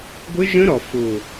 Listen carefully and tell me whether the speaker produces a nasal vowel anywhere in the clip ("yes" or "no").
yes